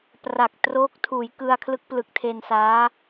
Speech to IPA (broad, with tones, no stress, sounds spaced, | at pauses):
p r a˨˩ k̚ t r oː˦˥ k̚ tʰ uː˩˦ j k ɯ˧ a̯ kʰ l ɯ˦˥ k̚ p l ɯ˨˩ k̚ tʰ e˧ n s aː˦˥